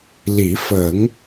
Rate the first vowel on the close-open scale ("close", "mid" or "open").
close